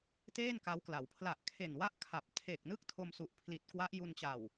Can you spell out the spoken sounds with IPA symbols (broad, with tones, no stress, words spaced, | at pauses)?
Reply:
teː˥˩n ka˦˥wkla˩˦w pʰla˨˩ʔkʰe˨˩n wa˥˩ʔkʰa˨˩p̚ tʰe˨˩k̚nɯ˥˩k̚ tʰo˧msu˨˩ʔpʰli˨˩t̚kwa˦˥ʔ ju˧nt͡ɕa˨˩w